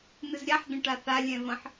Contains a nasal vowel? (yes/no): yes